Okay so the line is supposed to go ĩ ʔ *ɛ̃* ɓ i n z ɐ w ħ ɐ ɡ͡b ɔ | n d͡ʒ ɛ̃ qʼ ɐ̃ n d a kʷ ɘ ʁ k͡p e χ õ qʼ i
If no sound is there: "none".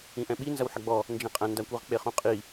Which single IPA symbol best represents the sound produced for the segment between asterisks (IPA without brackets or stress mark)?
ɛ̃